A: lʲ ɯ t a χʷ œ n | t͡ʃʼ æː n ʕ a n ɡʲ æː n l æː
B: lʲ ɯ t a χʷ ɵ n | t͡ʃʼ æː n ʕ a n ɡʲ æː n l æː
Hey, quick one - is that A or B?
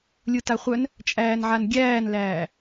A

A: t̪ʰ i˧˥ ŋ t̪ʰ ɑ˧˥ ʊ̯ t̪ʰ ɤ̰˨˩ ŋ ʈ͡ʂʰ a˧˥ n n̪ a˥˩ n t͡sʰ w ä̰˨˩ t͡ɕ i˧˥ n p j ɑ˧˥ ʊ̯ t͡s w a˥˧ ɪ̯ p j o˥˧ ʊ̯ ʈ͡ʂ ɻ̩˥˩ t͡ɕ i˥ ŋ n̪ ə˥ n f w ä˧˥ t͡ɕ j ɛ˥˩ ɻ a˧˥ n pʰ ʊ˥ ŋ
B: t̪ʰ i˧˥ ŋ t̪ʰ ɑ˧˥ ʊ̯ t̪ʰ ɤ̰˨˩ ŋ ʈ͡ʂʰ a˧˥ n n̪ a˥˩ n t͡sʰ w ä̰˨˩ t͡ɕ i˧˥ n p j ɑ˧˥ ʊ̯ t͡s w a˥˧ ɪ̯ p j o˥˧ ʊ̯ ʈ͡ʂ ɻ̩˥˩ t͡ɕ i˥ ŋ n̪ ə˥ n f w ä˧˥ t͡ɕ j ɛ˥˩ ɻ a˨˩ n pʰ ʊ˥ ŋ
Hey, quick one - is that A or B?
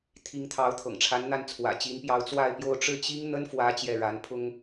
A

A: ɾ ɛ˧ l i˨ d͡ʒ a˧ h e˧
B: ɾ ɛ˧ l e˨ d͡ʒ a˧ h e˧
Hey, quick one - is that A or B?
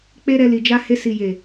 A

